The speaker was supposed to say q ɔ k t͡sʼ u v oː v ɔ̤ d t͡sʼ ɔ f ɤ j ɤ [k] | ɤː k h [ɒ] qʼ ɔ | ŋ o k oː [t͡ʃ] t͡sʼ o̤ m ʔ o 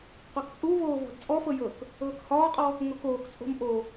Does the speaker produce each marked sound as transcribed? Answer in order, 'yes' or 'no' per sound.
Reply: yes, no, no

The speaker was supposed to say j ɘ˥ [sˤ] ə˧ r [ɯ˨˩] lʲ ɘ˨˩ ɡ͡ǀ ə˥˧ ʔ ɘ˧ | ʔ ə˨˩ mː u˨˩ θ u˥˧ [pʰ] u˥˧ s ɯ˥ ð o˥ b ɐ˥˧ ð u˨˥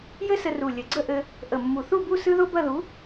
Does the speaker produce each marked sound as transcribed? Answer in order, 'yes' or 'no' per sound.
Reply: no, no, no

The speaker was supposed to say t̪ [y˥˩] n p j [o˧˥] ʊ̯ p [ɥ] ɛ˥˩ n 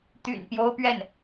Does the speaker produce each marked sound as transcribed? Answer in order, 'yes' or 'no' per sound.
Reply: no, no, yes

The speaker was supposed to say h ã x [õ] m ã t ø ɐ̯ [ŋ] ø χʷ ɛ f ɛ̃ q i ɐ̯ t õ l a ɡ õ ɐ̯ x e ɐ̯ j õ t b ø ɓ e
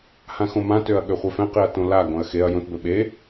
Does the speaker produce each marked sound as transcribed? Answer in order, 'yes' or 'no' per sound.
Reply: yes, no

